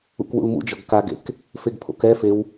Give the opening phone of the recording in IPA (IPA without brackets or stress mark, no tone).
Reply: ṵ